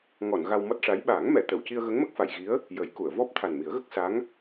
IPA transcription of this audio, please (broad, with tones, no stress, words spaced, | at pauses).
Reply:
ŋɔ˨˩˨n ɣa˧wmɔ˦˥t̚ʂa˧˥j ɓaː˨˩˦ŋmɛ˨˩˨ t̪ə˨˩˨wci˧ə̯ ɣə˧˥ŋmə˦˥k̚fa˨˩˨jɣi˧˥ə̯ | jə˨˩˦jku˨˩˨ə̯ vɔ˦˥p̚ t̪ʰa˨˩nmi˨˩˦ə̯ɣə˦˥k̚ sa˧˥ŋ